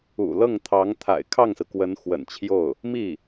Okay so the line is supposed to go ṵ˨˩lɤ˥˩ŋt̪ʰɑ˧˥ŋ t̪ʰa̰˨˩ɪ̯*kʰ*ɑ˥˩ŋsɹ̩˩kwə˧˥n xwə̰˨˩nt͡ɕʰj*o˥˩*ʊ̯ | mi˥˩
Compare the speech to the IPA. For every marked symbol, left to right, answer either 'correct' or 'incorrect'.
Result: correct, correct

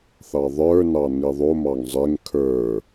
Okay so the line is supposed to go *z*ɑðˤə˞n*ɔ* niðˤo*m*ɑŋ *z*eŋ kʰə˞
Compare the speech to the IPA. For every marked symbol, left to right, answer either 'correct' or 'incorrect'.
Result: incorrect, incorrect, correct, incorrect

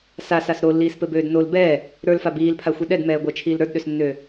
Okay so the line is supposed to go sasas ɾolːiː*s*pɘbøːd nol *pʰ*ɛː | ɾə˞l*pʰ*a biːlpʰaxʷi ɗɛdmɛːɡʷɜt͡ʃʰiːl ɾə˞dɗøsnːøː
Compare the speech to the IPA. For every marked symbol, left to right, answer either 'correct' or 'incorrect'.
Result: correct, incorrect, incorrect

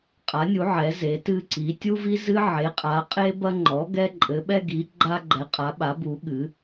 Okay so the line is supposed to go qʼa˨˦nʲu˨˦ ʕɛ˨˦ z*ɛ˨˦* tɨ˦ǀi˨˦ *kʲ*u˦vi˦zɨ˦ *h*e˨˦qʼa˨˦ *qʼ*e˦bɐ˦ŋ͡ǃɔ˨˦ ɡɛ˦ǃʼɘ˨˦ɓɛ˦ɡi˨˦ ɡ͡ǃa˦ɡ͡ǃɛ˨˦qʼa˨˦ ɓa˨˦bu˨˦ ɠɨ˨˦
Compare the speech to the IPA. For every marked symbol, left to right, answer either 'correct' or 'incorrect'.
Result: incorrect, incorrect, incorrect, correct

